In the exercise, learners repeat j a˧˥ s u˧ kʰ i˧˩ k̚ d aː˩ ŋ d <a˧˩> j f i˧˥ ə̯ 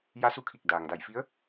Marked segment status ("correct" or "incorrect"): correct